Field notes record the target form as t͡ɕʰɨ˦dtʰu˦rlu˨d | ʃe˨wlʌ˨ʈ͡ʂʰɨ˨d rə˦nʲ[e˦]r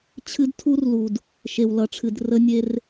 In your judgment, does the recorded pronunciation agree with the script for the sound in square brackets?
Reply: yes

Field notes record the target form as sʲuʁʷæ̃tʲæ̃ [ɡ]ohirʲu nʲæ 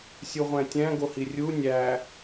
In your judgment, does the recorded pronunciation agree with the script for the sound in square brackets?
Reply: yes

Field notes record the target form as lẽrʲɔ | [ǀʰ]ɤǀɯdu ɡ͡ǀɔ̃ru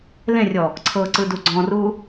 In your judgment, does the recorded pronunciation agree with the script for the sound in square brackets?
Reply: yes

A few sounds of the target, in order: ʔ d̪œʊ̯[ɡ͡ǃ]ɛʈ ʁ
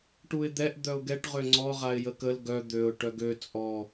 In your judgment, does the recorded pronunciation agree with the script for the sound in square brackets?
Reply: no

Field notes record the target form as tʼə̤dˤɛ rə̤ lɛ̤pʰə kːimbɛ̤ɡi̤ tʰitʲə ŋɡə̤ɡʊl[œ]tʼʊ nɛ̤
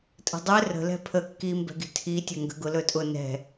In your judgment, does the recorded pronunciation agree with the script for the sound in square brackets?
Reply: no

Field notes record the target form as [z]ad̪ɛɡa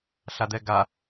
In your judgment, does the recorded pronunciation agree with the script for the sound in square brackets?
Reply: no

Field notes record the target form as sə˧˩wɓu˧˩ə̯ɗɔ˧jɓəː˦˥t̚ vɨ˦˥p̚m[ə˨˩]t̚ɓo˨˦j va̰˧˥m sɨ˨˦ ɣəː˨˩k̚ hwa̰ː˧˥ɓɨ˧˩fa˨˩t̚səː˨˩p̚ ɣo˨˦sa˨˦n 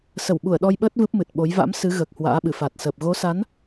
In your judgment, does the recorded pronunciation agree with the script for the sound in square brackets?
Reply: no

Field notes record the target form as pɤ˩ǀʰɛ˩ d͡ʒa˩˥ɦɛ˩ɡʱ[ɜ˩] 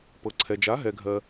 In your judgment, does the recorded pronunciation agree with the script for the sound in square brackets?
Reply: yes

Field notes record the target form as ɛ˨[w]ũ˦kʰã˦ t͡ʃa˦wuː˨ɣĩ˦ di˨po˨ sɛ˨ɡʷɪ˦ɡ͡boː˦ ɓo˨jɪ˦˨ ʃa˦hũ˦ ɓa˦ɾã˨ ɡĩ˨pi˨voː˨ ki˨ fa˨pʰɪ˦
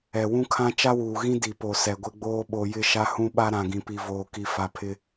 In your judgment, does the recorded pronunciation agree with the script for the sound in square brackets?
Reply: yes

